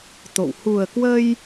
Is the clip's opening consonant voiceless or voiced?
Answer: voiceless